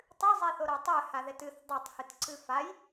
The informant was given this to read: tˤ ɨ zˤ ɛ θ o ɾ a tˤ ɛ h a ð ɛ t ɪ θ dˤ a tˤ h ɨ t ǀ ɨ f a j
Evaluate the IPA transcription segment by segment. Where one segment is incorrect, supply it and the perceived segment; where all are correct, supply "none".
ɪ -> ɨ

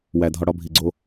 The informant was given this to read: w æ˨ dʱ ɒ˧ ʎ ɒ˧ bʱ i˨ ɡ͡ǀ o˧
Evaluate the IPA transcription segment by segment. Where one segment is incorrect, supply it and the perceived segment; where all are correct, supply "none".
ʎ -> ɽ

